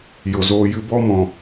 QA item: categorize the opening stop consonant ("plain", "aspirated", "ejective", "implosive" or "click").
plain